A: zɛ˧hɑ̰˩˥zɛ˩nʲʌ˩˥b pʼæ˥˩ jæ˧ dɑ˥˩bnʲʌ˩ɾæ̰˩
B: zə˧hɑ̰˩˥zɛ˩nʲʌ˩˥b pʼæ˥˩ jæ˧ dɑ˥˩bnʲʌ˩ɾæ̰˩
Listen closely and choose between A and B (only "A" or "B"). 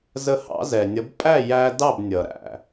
B